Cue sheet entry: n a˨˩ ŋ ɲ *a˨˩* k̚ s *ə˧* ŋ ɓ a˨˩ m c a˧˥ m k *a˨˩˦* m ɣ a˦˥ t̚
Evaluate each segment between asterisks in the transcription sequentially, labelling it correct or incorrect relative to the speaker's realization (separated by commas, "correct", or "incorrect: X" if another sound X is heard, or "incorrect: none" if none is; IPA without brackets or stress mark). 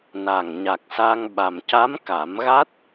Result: correct, incorrect: a˧, correct